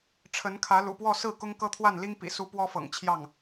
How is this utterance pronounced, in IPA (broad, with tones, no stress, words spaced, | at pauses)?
ʈ͡ʂʰə˧˥nkʰä˧˥lṵ˨˩pwɔ˥˧ sɹ̩˥˩ kʊ˥ŋkɤ˥t̪ʰwa˥˩n li˥ŋpḭ˨˩su˧˥ pwɔ˥fɤ̰˨˩ŋt͡ɕʰjɑ˥˩ŋ